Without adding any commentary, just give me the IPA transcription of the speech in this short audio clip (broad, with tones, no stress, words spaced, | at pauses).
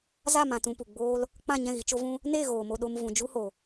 za˦˨mã˨tũ˨ pu˨ɡ͡boː˦l | k͡pã˦˨ɲɛ̃˦˨ɣi˨ t͡ʃo˦vũ˦ | ne˦˨ ɣoː˨mo˧ɗo˧m vũ˨ d͡ʒu˦ho˨